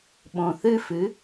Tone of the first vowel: low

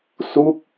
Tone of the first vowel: falling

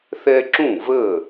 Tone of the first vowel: high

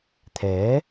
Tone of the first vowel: rising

